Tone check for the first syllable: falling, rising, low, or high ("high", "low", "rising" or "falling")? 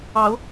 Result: rising